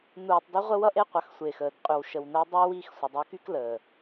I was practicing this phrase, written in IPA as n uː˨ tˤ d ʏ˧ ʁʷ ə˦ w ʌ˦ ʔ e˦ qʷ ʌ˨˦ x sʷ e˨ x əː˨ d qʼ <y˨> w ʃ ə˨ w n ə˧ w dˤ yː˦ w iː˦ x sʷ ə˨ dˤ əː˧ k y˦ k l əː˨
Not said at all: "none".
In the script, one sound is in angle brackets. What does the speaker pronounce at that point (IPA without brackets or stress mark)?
y˨